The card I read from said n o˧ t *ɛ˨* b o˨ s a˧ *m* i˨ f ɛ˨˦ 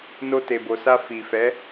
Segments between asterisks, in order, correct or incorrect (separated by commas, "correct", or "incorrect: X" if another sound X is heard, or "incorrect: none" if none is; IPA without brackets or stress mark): incorrect: e˨, incorrect: f